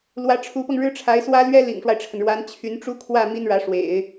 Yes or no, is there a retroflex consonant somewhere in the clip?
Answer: yes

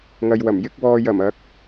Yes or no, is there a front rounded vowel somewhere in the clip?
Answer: no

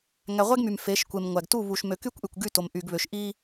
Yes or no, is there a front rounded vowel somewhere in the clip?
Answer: yes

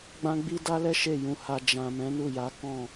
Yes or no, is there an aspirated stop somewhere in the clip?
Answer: no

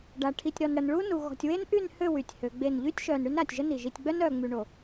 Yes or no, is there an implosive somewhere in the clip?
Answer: no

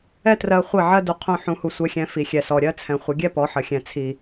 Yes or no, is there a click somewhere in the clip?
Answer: no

